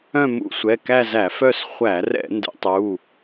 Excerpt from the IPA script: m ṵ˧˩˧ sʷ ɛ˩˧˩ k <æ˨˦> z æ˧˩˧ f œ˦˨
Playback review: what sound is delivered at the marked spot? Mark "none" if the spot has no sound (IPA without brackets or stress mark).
æ˦˨